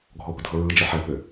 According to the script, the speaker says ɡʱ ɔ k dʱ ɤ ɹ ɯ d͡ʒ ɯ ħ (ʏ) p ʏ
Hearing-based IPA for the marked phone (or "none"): ɛ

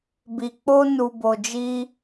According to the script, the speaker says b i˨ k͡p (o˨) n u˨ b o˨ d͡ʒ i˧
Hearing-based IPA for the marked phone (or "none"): o˧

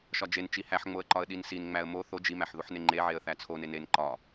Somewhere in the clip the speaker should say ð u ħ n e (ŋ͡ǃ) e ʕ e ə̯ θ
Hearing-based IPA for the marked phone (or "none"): ŋ͡ǃ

